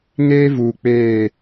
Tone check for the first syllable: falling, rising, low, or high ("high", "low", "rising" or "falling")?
high